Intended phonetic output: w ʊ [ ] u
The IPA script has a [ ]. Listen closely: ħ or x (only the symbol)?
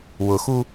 x